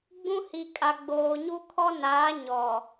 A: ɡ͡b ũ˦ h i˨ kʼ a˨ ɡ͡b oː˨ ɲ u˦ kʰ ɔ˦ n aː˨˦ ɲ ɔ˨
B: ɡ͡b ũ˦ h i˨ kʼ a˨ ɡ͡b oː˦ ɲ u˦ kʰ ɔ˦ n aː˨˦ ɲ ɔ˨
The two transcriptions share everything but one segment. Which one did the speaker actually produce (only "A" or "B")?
A